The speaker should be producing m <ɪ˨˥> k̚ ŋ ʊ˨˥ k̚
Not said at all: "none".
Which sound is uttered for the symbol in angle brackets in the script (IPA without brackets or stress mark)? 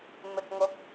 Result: ɪ˨